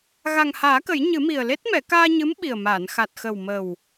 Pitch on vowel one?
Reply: low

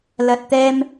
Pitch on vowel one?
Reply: low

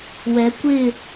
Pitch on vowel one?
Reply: rising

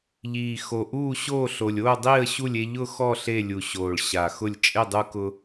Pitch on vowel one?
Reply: low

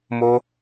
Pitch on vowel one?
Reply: high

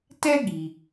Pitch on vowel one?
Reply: high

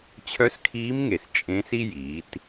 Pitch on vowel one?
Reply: rising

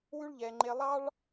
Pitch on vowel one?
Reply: high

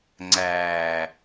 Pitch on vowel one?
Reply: low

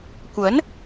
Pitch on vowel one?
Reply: rising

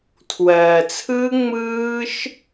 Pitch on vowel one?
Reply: low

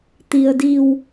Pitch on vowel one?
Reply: low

